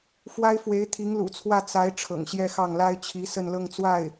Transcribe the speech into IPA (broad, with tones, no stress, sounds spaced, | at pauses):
f w a˥ ɪ̯ f w e˧˥ ɪ̯ t̪ʰ i˧˥ ŋ l ṵ˨˩ t͡sʰ w ä˥˩ t͡s a˧˥ ɪ̯ ʈ͡ʂʰ ɤ̰˨˩ ŋ ɕ j ɛ˥˧ x ɑ˥˩ ŋ l a˥ ɪ̯ t͡ɕʰ i˧˥ s ə˥˧ n l ɤ˥˧ ŋ t͡s w a˥˩ ɪ̯